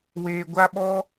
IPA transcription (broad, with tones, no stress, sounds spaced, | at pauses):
w eː˧ ɡʷ a˦ ɓ ɔ˦